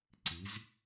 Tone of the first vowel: rising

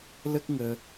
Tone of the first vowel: high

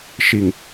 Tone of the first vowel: low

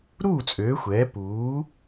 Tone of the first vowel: falling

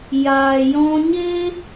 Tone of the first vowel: low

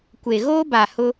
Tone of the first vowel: low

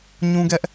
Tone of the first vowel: high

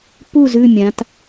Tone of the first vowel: falling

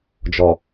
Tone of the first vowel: low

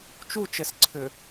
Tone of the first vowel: falling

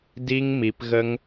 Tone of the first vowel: high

